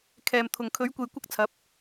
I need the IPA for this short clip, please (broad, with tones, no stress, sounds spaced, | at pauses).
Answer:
kʰ ɛː˨ m t̪ʰ ʊ˨ ŋ kʰ ɵ˨˥ ɥ kʷ e˨ j kʷ ɐ˥ k̚ t͡sʰ ɐ˨˥ p̚